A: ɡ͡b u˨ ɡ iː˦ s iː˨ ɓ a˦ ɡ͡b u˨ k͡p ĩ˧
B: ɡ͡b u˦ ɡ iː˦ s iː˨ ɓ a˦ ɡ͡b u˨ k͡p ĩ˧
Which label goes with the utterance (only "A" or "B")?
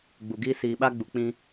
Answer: A